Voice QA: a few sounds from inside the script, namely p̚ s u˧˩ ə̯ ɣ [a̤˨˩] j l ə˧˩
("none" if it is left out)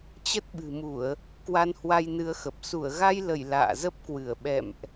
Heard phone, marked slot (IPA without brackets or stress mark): a˧